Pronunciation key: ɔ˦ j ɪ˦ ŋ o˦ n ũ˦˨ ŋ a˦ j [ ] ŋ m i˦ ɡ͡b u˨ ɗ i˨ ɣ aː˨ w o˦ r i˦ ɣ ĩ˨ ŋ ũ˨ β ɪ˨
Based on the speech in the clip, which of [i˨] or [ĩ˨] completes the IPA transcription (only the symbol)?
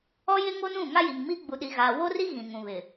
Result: i˨